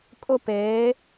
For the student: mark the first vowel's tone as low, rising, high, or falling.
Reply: high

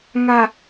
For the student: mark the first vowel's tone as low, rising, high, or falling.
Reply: low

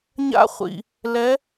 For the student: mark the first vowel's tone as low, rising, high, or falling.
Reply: high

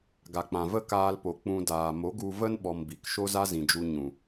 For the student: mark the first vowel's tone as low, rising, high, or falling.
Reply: low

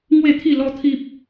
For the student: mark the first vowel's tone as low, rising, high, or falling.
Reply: falling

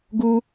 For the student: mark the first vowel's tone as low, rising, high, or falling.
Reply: high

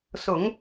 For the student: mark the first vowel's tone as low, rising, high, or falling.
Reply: low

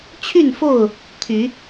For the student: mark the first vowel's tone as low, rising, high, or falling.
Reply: falling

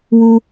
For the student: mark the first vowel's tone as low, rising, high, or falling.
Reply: high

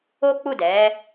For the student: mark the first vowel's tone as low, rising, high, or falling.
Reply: high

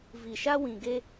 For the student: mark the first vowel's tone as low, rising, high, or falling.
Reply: low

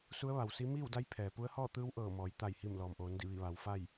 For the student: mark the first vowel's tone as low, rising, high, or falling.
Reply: rising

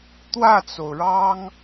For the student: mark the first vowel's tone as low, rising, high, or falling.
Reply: falling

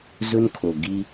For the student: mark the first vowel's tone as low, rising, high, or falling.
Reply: high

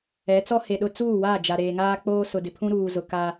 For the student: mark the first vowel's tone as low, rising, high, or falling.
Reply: rising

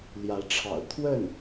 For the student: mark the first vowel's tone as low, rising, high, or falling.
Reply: rising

